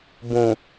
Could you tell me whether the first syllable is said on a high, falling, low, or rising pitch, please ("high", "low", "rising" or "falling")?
low